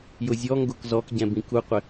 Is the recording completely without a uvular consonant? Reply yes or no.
no